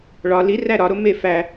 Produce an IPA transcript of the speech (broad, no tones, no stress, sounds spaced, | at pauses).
ɭ ɒ l i r æ ɾ ɒ ɾ o m e f æ